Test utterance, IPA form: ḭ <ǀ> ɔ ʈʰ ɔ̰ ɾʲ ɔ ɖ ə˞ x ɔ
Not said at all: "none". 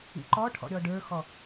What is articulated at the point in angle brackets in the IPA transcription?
ǃ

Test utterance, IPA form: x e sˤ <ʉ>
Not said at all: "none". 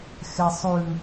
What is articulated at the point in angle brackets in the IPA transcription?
ʉ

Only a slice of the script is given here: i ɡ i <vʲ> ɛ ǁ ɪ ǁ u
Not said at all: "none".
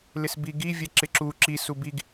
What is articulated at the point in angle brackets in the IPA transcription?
vʲ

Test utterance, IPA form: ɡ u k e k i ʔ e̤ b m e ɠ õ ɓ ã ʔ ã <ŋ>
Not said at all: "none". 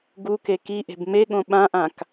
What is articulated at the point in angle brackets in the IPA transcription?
k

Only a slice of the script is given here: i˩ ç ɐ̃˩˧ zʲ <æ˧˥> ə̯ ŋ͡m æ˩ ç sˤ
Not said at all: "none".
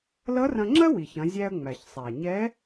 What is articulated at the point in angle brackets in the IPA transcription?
æ˧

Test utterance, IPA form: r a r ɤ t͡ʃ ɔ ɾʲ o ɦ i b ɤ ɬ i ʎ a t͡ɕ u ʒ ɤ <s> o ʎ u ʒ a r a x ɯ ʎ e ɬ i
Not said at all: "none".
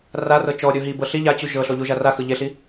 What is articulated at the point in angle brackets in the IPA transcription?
ɬ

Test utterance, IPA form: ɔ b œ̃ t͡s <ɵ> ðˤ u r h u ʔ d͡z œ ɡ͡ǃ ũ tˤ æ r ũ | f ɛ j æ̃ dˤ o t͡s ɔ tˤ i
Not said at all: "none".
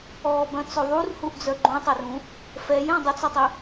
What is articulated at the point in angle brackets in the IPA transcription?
ɵ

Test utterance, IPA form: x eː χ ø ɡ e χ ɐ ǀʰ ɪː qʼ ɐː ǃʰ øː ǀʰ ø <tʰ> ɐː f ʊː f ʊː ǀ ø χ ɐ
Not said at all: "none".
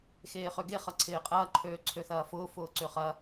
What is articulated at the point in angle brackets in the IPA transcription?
θ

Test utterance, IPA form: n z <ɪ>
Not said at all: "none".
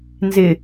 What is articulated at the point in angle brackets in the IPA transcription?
ɪ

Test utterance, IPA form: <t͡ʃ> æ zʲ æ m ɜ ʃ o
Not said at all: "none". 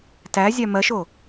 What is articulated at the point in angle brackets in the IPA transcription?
t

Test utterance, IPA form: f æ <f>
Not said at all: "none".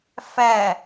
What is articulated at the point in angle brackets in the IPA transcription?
none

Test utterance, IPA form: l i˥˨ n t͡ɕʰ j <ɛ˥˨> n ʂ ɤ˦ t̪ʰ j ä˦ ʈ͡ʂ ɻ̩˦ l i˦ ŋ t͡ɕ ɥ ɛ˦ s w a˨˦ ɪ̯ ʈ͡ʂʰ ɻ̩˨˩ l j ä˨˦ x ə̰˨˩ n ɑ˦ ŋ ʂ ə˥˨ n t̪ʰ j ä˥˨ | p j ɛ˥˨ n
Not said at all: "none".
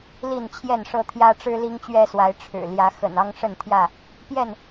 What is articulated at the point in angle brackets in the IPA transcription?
ɛ˥˨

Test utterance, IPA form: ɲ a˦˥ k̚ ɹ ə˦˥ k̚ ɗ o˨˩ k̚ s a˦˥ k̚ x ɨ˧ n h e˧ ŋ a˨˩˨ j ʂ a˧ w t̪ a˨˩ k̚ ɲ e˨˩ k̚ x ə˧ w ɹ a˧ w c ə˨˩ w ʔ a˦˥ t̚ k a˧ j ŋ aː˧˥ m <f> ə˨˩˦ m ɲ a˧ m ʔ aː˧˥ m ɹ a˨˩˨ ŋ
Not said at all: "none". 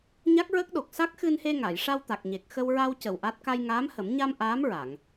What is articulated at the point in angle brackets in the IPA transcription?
h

